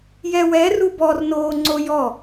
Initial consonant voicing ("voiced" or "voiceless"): voiced